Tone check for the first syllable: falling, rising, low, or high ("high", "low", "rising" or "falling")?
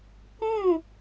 falling